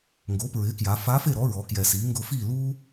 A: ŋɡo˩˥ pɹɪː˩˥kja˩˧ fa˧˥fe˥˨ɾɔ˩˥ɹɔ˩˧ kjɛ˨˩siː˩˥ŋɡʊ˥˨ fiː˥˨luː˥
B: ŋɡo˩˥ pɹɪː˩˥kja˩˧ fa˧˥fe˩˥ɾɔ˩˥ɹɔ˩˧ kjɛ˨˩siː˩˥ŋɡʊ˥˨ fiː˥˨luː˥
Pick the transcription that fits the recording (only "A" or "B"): A